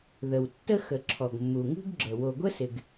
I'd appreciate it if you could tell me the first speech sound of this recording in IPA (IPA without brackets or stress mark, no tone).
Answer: ð